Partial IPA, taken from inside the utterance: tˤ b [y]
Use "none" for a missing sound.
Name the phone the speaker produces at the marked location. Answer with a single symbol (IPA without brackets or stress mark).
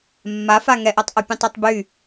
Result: y